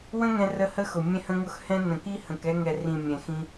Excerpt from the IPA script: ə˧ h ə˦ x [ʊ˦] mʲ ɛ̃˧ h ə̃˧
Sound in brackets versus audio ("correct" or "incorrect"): incorrect